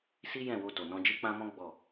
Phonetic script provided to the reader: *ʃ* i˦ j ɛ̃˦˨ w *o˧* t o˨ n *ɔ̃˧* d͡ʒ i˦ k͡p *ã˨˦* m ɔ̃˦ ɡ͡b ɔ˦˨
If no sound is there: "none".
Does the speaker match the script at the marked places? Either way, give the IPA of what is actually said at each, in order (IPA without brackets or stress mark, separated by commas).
s, o˧, ɔ̃˧, ã˦